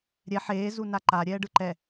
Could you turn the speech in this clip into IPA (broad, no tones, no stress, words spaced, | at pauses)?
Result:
ɾʲɛ ħeː zunaǃa ɾʲɛːɖɯǃɛ